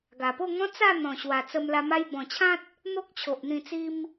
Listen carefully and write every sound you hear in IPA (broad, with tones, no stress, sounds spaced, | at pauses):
ɡ a˨˩ p o˥˧ ŋ ɔ̃˦ t͡s a˥˧ n̪ ɔ̃˨˩ ɕ w a˨˩ t͡s ə˧ m l a˧ m a˧ j b ɔ̃˨˩ t͡ɕʰ ã˦ t̚ | n̪ o˦ k̚ t͡ɕʰ o˨ ʔ n̪ ĩ˧ t͡s i˦ m